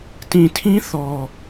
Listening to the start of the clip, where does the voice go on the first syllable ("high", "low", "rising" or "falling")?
low